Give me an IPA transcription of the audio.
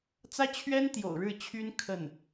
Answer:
t͡s ä˥ t͡ɕʰ ɥ ɛ˥ n t̪ j o̰˨˩ ʊ̯ ɻ ɻ̩˥˩ t͡ɕʰ y˥ n kʰ ə˥˩ n

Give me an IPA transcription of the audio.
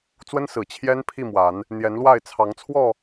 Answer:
t͡s w ə˦ n s ɹ̩˨˩ t͡ɕʰ j ɛ˦ n pʰ i˥˨ m w a˨˦ n | n̪ j ɛ˨˦ n l w a˥˨ ɪ̯ t͡sʰ ɑ˨˦ ŋ t͡sʰ w ɔ˥˨

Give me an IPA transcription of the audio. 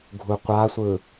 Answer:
ɡʱ u qʷ a sʷ ɯ

